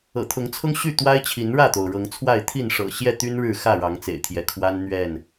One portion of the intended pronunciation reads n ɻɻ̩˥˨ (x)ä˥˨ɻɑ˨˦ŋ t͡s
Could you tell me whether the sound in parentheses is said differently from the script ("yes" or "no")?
no